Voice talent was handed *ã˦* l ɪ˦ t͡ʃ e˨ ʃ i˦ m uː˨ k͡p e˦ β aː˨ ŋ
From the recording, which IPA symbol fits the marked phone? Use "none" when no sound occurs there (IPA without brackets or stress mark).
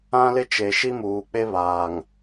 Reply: ã˦